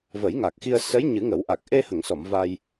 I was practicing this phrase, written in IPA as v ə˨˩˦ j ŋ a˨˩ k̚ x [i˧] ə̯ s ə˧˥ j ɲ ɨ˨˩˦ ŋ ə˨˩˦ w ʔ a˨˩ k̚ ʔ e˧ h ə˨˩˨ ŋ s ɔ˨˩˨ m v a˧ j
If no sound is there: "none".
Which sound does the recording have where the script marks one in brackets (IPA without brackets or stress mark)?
i˧